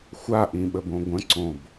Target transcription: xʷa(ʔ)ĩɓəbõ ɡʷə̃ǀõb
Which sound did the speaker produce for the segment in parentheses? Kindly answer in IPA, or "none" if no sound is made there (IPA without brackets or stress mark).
ʔ